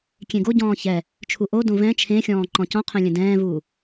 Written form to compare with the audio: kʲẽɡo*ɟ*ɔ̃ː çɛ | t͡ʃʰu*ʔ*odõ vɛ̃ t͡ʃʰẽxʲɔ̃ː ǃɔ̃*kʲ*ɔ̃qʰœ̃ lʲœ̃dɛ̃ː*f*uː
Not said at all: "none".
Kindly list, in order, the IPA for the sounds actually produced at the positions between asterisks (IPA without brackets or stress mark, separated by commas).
ɟ, ʔ, c, v